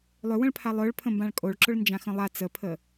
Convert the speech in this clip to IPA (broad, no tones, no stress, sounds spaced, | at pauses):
lˠ ʏ w ə̃ ɭ pʰ a lˠ œ ɭ pʰ ə̃ m b ã ɭ kʼ o ɭ ǁ ʊ ɭ n d͡ʒ ã x ə̃ lˠ a t͡s ə pʰ ə